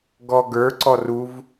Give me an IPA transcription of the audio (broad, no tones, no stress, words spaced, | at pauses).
ɡɔɡə˞ǀɔ ruv